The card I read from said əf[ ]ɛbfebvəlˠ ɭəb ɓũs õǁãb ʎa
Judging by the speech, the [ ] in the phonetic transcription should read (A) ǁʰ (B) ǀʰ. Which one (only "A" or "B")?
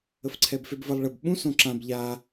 B